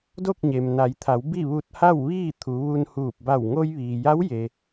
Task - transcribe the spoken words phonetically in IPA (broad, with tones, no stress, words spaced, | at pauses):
do˥˨k̚ɲe˩mna˩˧jt̪ʰa˩˧w bi˥˨ʋu˧t̚ ha˥˨wʋiː˥˨ t̪ʰu˩˧ʋu˧nhuː˧˩p̚ ba˧˩w ŋo˧jʋiː˩ja˧˥w je˩